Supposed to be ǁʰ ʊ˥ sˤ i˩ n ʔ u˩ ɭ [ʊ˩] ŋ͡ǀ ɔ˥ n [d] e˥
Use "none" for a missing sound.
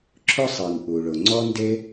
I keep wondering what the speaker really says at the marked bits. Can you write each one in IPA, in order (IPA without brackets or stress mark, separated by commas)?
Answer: ʊ˩, d